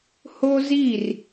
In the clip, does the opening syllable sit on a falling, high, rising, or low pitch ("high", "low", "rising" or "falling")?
high